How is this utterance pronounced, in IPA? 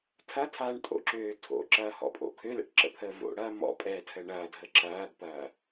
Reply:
tʰ ɐ tʰ aː ɳ tʼ o̰ ǁ øː tʰ o̰ ǁ ɐː h ɔ̰ pʼ o̰ kʰ ø l ɛ̰ ʈ ǁ ə̰ pʰ əː v o̰ ɽ ɐː m ɔ̰ pʼ ɛː tʰ ə ɳ ɐː dʱ ə ǁ ɐː ɡ p ɐː

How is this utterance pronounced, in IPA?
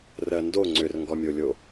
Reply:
r ɜ n d o ŋ͡ǀ ʏ r ŋ ɡ ɔ mʲ o lʲ o

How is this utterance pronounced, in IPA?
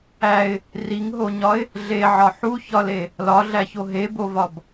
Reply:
æ ɪ̯ | r i ŋ ɦ o ɲ ɒ ɪ̯ | ɮ e ʕ ɒ ħ u ç ɒ l e | l ɒ ɮ æ ç o ɦ e b o v ɒ b

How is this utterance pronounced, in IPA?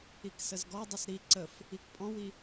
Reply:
i k s ə z ɡ ɔ dˤ ʏ s ɾ i ǀ ə f | i k pʼ ɔ̃ w i

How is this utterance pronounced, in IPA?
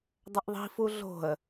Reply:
dˤ ə ʔ ðˤ i̤ f u ɮ o̤ ə̯

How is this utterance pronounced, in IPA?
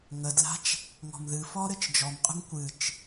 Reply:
ŋ ə d l a̤ t͡ʃ | ŋ ɔ̤ m ð ɨ f ɔ ɾ ɘ t͡ʃ d͡ʒ ɔ m qʼ ə̤ m kʷ ɨ t͡ʃ

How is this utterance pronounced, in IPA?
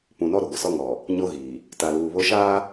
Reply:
p ũ˨ n ɔ˦ ɾ ʊ˨ ɡʷ ɪ˨ s ɔ˦ ŋ ɔ˨ | ɲ o˦ ɣ iː˨ | t a˨ l uː˨ β o˦ ʃ aː˦

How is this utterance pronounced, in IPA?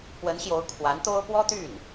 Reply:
p w ə˧˥ n ɕ j o˧˥ ʊ̯ kʰ w a˧˥ n t̪ o˥ ʊ̯ p w ɔ˥ t̪ y˥˩ n

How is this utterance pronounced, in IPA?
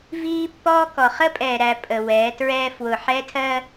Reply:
v iː˦ pː ɔː˦ k ɔ˨ χ ə˦ pʼ ɛː˨ ɾ æ˨ pʼ ə˨ w ɛː˨˦ t ɹ ɛː˦ f w ʊ˨ ħ ɛ˦ tʰ ɜ˦

